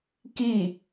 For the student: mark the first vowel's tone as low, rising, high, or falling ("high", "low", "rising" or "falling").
falling